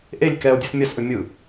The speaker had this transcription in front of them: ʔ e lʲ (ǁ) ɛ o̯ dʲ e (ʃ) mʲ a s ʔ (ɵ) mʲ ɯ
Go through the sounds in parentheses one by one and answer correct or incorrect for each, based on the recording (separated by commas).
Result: incorrect, incorrect, correct